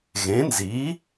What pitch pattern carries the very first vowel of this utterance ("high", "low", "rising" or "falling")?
rising